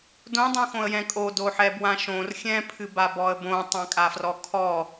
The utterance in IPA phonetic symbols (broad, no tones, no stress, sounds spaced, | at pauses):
d õ dˤ õ x õ ə̯ j ɛ̃ kʼ o d o ħ ɛ b w ã ʃ õ r xʲ ɛ̃ pʰ ɨ b a b ɔ ə̯ b õ tˤ ã kʼ a f r ɔ kʰ ɔ